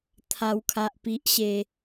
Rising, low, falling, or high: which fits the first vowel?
high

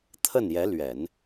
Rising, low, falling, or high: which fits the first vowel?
falling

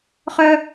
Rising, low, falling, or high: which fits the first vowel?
high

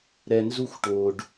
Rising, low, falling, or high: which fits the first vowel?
low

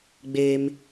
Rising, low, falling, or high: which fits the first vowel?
high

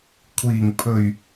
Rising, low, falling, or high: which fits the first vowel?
low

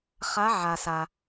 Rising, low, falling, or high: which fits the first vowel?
rising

